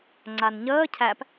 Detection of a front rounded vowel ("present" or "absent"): absent